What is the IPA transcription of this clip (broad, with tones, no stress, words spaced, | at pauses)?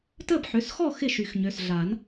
təː˥˨bħø˩˧˩sxɔ˥˨ xɪ˥˨ʃy˨˩˦xɲø˩˧˩sɮa˨˩˦n